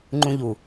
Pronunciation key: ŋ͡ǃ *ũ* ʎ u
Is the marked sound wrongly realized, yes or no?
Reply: no